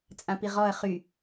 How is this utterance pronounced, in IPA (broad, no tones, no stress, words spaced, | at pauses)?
t͡sʼãpiʁɔɐ̯ χy